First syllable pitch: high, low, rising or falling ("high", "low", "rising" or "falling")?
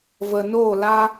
low